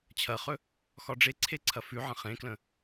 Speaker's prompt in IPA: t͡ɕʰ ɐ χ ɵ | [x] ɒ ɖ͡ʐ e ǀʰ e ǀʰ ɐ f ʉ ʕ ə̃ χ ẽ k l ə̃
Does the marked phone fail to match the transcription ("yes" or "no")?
no